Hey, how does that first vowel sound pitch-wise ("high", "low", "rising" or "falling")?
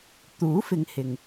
rising